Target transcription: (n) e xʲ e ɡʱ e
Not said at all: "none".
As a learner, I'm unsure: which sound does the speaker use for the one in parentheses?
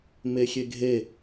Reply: m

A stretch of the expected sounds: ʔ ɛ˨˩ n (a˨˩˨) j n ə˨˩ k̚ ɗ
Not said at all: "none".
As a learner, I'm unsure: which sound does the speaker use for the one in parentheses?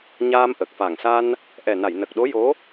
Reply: a˨˩˨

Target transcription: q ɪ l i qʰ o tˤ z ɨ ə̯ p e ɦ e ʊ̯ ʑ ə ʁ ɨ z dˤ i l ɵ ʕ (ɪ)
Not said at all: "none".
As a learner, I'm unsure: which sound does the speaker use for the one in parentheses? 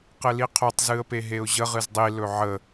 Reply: ə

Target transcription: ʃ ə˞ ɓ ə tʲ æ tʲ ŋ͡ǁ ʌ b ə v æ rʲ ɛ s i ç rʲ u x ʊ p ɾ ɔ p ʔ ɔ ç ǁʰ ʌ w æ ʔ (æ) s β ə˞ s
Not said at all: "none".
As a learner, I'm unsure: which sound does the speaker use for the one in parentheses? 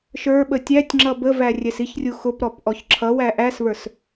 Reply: æ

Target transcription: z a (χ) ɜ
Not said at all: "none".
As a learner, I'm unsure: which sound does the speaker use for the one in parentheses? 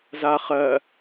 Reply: χ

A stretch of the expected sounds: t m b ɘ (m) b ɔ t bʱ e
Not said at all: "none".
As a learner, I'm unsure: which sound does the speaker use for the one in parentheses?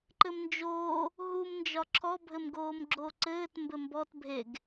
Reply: m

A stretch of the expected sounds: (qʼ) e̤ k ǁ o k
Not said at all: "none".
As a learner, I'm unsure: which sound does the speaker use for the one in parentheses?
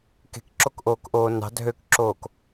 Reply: k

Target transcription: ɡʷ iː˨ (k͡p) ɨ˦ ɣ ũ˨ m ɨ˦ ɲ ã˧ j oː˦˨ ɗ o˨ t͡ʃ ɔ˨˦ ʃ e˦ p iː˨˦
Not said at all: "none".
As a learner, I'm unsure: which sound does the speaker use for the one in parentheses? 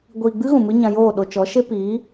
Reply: ɡ͡b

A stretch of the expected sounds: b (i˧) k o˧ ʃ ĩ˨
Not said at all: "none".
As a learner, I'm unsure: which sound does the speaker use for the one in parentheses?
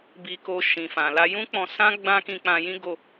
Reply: i˧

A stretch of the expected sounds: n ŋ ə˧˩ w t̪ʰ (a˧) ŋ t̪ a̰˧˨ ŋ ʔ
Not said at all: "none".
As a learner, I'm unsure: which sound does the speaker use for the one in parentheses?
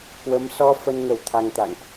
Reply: a˧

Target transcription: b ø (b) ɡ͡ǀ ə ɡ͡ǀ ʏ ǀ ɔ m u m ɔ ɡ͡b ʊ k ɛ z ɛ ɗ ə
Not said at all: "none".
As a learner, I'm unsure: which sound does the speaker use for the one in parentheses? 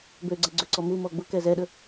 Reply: none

